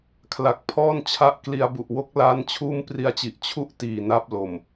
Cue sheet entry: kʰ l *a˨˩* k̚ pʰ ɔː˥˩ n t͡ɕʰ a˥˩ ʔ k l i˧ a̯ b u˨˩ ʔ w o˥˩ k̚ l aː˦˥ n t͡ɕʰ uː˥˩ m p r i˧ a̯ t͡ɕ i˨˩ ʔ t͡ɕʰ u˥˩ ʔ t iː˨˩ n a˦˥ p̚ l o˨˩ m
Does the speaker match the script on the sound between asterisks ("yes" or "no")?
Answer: yes